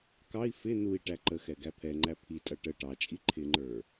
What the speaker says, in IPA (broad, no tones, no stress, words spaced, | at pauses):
kɑi̯ fɪ nui̯ ʈæǃəxɛ ɡæpʰɛŋ͡ǃæ pʰitʼʌ ʈə ʈɑt͡ʃʼi ǃʰɪŋ͡ǃə˞